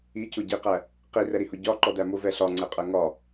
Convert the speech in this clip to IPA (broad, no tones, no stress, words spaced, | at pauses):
icʊ ɟiqæ | qirɛɾihʊ ɟɒǃɔdæ mʊvɛ ɬɒŋ͡ǀɛqʼɜ ŋɒ